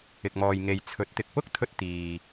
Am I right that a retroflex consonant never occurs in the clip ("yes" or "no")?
yes